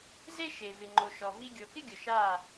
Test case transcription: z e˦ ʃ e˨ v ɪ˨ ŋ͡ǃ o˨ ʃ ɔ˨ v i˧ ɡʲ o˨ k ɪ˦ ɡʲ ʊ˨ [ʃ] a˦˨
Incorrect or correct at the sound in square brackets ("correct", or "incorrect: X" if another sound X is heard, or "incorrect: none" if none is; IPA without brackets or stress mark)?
correct